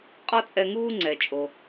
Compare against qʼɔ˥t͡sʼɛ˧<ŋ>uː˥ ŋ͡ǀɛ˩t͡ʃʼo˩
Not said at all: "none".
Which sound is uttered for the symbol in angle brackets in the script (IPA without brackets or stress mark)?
ŋ